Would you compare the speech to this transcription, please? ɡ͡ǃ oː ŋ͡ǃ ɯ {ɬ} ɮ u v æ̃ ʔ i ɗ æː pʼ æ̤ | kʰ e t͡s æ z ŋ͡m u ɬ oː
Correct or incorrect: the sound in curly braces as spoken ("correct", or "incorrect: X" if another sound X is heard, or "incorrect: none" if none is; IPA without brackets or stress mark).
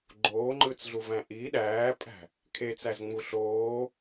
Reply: incorrect: t͡s